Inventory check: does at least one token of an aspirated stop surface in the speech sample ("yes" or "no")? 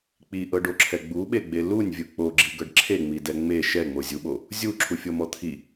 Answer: yes